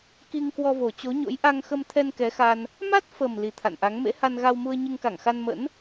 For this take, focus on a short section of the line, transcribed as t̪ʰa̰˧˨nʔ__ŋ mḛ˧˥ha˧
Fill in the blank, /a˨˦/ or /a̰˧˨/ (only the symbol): a˨˦